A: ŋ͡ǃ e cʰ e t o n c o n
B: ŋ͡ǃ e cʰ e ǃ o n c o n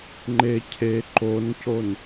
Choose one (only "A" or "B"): B